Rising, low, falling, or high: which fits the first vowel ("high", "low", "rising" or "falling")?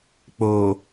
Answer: low